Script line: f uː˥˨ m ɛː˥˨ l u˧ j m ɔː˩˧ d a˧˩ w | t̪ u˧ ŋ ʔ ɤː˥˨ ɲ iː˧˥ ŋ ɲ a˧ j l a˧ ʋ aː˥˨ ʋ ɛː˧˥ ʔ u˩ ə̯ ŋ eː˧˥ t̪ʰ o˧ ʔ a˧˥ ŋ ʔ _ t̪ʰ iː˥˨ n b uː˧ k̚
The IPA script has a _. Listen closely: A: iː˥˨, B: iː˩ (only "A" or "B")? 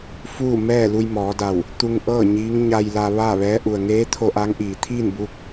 B